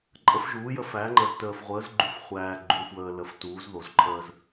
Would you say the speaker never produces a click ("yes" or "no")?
no